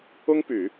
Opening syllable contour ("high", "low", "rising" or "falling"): high